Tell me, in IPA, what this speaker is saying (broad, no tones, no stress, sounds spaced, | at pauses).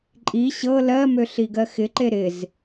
ǃʼ i ɕ ɤ l ɜ m ø ɬ i ɡ ɜ x ɪ ǃ e ɾ ɪ z